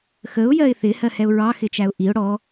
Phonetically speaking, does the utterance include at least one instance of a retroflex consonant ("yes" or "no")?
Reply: yes